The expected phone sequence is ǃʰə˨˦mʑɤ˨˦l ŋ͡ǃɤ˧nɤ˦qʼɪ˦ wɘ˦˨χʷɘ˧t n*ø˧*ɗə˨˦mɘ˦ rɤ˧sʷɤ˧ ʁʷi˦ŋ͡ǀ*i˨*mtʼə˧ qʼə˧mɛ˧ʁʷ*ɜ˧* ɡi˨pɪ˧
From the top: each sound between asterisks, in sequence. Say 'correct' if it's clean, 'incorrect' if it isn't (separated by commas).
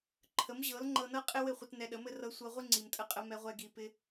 incorrect, correct, incorrect